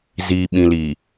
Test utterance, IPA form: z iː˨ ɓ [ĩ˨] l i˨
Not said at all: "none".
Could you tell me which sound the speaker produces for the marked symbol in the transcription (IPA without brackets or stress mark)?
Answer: ĩ˨